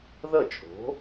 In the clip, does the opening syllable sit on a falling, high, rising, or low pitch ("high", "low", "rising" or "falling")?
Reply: falling